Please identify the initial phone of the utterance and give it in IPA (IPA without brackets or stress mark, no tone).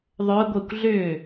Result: ðˤ